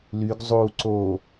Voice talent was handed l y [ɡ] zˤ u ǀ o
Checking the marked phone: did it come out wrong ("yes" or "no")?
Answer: no